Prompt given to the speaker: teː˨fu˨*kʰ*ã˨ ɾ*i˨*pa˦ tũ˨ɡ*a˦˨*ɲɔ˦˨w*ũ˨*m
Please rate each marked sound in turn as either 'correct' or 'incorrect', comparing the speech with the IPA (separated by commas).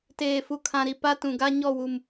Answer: correct, correct, incorrect, incorrect